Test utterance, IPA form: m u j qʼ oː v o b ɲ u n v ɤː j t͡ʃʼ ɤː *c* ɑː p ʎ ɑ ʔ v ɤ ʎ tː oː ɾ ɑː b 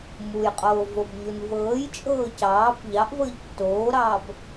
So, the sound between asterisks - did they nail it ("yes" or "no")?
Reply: yes